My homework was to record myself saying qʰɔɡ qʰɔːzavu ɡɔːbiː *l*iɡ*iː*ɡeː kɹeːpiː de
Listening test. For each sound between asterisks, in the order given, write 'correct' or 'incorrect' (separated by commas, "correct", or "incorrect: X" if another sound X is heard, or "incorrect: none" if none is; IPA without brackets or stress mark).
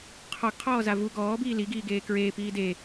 correct, correct